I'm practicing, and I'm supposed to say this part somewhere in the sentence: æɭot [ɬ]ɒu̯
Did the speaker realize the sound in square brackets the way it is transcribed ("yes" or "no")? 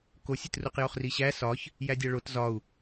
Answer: no